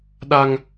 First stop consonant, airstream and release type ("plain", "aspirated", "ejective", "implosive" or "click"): implosive